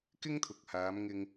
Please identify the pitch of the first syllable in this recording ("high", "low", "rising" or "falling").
high